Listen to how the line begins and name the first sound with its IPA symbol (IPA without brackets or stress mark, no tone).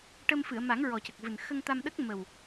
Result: ʈ